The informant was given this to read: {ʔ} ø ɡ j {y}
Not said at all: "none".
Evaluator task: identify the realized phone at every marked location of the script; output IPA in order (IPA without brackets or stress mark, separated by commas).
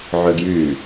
ʕ, y